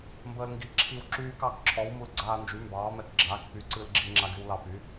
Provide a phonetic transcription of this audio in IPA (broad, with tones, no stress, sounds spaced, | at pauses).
m b əː˧ l ŋ ɡ i˩˥ ǁʰ i˧ w ǁ yː˧ k ɑ˩˥ k ǁʰ ɔ˩˥ w m u˧ l ɡ͡ǀ aː˧ n d͡ʒ y˩˥ m b ɑː˩˥ m ɛ˧ k ɡ͡ǁ aː˩˥ k p y˩˥ ǀ ɨ˧ l ɡ͡ǁ i˧ ŋ͡ǁ a˧ ɡ y˧ w l ɑ˧ p y˩˥